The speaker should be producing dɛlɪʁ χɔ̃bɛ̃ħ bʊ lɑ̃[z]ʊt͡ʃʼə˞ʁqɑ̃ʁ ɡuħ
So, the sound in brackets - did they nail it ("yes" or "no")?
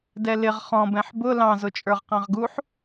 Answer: yes